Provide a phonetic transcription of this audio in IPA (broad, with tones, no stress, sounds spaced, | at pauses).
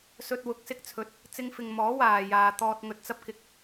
s ɵ˧ t̚ w ʊ˨˥ k̚ s ɪ˧ k̚ t͡sʰ ɵ˨ t̚ | t͡s ɪ˧ ŋ f ɪ˨ ŋ m ɔː˨˥ w aː˨ j aː˨ t̪ ɔː˧ t̚ ŋ ɵ˧ t̚ t͡s ɐ˥ p̚ k ɪ˧ k̚